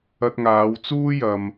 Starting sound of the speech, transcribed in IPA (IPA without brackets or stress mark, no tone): ɐ